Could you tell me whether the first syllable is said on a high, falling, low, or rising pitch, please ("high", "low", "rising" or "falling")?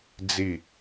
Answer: falling